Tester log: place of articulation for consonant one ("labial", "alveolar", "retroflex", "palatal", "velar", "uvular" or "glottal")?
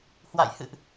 glottal